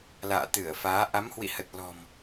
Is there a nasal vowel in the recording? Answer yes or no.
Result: no